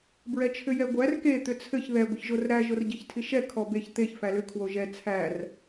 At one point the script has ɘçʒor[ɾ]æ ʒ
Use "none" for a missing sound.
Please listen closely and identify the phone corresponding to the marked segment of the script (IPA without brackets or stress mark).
ɾ